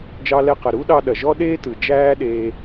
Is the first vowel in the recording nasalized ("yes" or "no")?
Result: no